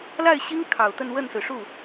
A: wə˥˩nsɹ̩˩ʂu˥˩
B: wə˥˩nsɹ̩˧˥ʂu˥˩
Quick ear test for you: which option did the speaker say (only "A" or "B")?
A